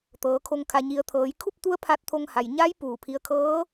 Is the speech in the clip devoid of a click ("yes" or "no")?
yes